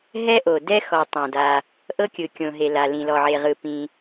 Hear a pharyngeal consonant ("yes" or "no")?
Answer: yes